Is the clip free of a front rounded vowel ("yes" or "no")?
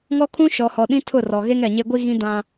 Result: yes